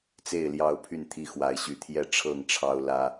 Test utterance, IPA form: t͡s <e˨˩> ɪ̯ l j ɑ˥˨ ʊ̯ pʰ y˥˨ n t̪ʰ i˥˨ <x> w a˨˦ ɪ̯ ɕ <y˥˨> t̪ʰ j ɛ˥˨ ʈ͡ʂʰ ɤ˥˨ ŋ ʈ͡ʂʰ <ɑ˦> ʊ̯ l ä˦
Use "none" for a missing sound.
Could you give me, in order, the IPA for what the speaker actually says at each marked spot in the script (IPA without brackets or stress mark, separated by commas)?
e˥˨, x, y˨˦, ɑ˦